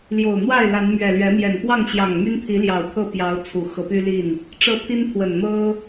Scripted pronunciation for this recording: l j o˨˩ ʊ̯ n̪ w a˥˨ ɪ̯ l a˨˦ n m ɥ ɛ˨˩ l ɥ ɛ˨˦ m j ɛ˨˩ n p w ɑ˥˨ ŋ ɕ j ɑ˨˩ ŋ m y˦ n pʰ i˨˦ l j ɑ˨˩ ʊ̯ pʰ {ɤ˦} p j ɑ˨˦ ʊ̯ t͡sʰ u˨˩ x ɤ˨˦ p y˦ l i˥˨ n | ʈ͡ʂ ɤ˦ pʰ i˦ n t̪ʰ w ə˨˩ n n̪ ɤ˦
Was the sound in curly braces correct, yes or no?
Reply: no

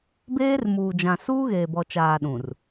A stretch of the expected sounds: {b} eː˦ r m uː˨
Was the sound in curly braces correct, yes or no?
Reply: yes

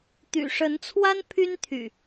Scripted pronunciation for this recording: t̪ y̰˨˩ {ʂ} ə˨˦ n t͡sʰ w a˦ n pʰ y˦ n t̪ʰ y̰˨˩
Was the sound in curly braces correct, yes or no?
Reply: yes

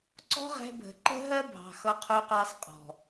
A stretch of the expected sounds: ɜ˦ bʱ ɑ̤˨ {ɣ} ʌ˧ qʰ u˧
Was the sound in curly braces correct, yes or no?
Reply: no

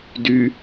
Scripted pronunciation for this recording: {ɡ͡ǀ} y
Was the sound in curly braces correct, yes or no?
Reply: no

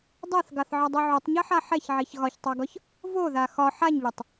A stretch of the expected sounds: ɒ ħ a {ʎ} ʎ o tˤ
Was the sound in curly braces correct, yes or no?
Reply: no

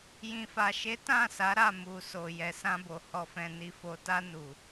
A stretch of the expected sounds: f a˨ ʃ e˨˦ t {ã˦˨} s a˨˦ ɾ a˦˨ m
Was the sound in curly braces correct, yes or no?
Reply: yes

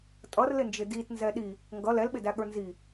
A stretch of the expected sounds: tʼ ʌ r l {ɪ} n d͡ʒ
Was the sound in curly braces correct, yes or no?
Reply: yes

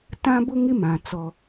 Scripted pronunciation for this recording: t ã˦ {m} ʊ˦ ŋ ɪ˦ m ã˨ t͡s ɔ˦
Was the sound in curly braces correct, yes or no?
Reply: no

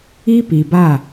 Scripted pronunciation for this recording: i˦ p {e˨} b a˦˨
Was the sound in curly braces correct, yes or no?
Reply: no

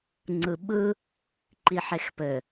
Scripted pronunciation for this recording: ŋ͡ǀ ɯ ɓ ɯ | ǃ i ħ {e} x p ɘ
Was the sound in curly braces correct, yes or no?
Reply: yes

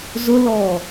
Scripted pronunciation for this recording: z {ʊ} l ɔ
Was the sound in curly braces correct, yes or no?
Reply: yes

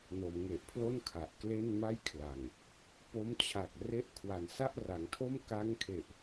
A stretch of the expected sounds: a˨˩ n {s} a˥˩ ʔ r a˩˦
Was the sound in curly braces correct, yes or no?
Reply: yes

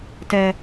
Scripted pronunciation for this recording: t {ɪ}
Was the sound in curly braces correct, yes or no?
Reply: no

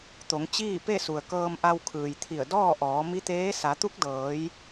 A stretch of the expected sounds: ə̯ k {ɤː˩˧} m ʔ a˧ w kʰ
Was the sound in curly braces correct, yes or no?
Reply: no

